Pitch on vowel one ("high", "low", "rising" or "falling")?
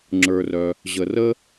low